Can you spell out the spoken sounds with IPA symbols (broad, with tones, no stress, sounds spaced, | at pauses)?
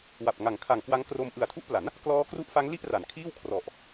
w a˨˩ p̚ ŋ a˨˩ ŋ kʰ a˨˩ ŋ k w a˦˥ ŋ k r o˧ m ʔ ɯ˨˩ a̯ tʰ u˦˥ ʔ p l a˩˦ n | k l ɔː˦˥ k r u˦˥ ʔ f a˦˥ ŋ l i˥˩ ʔ r a˩˦ n kʰ iː˥˩ w kʰ r ɔ˨˩ ʔ